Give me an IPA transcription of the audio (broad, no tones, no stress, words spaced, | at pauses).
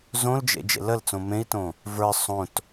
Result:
zõld͡ʒḛ d͡ʒḛləlt͡sõ mẽi̯tõ | və˞ sˤõt